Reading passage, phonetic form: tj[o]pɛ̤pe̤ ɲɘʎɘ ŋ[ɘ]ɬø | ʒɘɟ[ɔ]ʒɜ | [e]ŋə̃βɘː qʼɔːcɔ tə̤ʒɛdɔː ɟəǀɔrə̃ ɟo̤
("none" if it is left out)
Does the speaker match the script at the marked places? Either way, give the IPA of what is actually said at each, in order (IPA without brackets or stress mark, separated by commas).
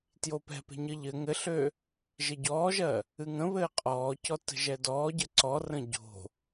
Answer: o, ɘ, ɔː, ɨ